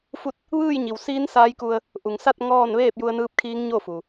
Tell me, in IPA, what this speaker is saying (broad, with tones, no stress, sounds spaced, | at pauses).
f u˥˨ t̚ | ʋ ɯː˥˨ j ɲ i˩ w s iː˧˥ n s aː˧˥ j k u˧ ə̯ | ʔ u˩ ŋ s a˥˨ t̚ ŋ ɔː˥˨ n ʋ eː˥˨ p̚ j u˧ ə̯ n ɯː˧˥ p̚ kʰ iː˧˥ ŋ ɲ o˥˨ f u˩